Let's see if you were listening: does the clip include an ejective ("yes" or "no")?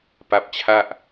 no